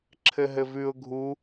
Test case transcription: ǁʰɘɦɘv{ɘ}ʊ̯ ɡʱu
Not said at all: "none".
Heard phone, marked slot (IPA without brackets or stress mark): ʉ